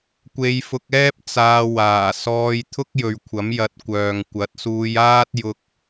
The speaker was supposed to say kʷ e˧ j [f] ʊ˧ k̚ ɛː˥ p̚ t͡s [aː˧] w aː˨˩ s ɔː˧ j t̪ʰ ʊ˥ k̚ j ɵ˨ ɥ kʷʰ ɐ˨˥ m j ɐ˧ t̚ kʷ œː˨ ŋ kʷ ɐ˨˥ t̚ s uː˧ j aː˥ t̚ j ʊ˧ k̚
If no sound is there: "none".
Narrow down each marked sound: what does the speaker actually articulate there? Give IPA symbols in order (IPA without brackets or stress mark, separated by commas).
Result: f, aː˧